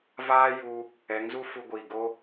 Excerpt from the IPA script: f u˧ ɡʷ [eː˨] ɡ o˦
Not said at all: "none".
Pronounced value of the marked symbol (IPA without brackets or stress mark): iː˨